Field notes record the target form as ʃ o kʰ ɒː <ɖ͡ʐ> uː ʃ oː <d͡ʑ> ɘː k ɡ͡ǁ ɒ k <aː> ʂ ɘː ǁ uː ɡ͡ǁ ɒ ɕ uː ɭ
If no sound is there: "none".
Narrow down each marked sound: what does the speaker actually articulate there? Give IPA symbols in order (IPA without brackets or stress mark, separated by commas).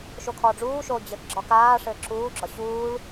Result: ɖ͡ʐ, d͡ʑ, aː